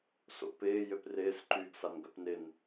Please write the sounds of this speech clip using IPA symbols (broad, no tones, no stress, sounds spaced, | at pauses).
s o̰ p ɪː j ø p r ɪː s ǃ yː ɡ s a n ɡ œ p n ɪ n